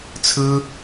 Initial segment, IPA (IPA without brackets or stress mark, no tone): t͡sʰ